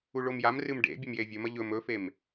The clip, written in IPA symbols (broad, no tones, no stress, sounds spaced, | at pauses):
u ɭ o m j a m r ɨ m ɖ ḛ bʲ ɵ m j e vʲ ɵ m ɐ ʎ ɵ m ɵ f e m